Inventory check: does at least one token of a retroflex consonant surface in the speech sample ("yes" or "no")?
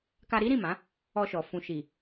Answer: no